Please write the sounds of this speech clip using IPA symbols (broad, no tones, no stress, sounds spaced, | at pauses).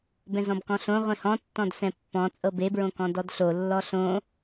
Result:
b ɛ̃ z ɔ̃ b k ɔ̃ ɬ õ ʁʷ ẽ h ɔ̃ tː ɔ̃ d s ɛ̃ pː ɔ̃ t͡sʼ ɤ b e b ɹ õ k ɔ̃ d ɔ d ɬ o lː ɔ ɬ õ